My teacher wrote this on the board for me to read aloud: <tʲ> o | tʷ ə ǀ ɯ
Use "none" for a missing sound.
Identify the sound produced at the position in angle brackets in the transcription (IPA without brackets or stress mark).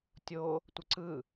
tʲ